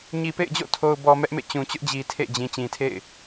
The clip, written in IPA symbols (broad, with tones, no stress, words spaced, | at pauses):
ɲi˨pḛ˦˨ɪ̯d͡ʑo̰˦˨ tʰo˨ʊ̯bɔ˨ mɛ˦ʔmḛ˦˨ t͡ɕũ˨t͡ɕʊ˦ʔd͡ʑi˨ tʰḛ˦˨d͡ʑĩ˨ t͡ɕĩ˨tʰḛ˦˨ɪ̯